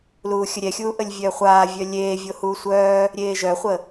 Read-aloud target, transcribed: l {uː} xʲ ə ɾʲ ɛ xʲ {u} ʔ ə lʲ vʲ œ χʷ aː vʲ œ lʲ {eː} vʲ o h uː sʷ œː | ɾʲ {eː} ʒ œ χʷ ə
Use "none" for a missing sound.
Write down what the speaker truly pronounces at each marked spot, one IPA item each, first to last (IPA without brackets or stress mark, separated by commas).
uː, uː, eː, eː